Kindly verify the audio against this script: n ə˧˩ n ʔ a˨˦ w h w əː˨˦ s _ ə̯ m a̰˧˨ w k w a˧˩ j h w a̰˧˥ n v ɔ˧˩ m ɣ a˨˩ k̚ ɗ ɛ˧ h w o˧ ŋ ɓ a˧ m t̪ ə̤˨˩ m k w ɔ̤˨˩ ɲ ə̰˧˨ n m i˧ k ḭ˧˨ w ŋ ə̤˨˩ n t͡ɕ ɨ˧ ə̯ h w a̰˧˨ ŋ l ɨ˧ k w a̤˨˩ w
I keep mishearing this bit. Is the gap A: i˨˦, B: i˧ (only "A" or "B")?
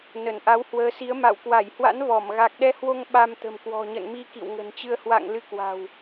A